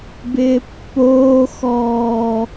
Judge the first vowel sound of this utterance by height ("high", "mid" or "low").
high